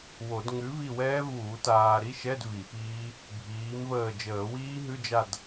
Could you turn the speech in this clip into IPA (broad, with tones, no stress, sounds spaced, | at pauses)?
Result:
w o˨˩˦ d ŋ ʉ˨˥ v i˦˨ w ɛː˦˥ v uː˨˩˦ t aː˨ ɾ i˧˥˧ ʃ ɛ˧˥˧ d v i˨˩˦ p iː˦˥ | bʱ iː˨˥ m v əː˦˨ d͡ʒ əː˨˩˦ w iː˦˥ ɦ ʉ˧˥˧ d͡ʒ a˦˨ d